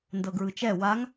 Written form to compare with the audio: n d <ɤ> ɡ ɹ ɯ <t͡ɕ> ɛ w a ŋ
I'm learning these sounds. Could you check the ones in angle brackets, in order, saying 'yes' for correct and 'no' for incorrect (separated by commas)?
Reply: yes, no